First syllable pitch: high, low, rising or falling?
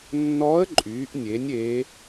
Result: rising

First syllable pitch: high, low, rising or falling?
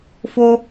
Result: high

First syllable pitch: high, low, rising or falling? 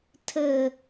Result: falling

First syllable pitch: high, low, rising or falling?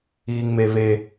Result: high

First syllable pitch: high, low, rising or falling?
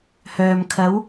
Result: low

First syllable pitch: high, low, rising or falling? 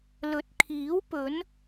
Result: rising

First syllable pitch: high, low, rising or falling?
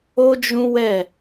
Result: high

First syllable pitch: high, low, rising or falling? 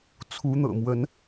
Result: rising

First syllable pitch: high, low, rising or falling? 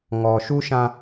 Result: low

